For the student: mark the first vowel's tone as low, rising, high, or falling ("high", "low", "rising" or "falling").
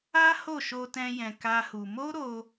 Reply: high